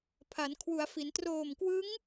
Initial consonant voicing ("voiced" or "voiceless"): voiceless